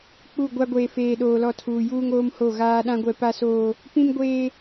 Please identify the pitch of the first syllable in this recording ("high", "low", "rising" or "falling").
falling